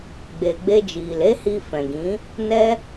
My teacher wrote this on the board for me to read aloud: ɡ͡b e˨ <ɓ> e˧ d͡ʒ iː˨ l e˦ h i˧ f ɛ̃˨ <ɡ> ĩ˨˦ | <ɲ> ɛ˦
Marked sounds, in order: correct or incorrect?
incorrect, correct, incorrect

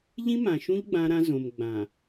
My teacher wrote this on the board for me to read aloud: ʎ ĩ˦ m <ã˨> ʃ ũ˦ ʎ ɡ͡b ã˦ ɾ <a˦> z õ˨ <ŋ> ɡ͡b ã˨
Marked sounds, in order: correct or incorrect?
correct, incorrect, incorrect

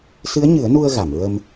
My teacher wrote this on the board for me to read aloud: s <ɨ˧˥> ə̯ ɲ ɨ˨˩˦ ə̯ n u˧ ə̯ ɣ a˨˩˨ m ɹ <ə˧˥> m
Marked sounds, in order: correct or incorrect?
correct, incorrect

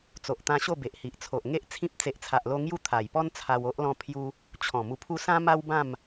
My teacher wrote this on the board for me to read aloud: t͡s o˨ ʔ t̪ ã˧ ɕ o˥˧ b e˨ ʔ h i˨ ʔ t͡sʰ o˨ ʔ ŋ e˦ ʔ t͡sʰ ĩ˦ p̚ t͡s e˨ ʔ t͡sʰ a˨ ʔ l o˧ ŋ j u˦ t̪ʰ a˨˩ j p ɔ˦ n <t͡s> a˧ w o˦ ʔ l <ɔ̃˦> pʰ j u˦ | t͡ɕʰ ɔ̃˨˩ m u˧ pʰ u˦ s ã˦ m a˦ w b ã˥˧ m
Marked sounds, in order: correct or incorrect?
incorrect, correct

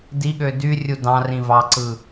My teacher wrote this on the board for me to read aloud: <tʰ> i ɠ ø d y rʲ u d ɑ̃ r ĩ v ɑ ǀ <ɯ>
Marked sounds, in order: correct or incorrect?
incorrect, correct

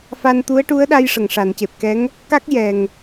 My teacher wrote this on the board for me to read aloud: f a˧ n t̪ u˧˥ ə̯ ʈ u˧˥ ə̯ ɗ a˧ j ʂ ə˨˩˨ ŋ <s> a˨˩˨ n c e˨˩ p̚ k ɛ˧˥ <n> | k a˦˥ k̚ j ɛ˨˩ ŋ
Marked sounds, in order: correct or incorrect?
incorrect, incorrect

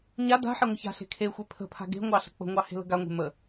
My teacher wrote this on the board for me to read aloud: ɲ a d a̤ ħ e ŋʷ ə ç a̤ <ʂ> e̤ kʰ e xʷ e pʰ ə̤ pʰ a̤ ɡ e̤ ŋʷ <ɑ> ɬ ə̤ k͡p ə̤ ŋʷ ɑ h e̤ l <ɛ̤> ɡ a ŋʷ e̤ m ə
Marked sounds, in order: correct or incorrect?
incorrect, correct, incorrect

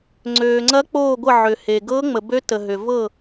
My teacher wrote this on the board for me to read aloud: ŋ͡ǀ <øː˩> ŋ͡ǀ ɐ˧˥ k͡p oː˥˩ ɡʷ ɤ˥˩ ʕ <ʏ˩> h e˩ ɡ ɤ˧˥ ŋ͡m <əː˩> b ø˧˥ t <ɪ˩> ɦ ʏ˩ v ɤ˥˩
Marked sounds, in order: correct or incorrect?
correct, correct, incorrect, incorrect

